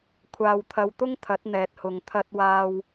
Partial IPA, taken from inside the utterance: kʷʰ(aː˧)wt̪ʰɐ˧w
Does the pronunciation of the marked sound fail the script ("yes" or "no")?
no